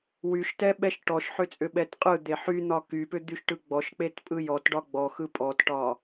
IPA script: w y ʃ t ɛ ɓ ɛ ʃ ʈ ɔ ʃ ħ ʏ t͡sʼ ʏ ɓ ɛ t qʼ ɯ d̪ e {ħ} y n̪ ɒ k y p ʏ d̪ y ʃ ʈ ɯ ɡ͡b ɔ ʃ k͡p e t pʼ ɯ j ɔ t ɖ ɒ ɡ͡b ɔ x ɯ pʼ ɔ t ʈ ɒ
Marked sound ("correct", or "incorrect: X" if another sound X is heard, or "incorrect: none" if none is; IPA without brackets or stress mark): correct